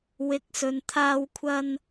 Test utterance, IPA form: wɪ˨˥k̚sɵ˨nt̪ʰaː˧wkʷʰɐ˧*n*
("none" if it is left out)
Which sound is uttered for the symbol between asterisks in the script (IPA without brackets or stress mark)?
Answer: n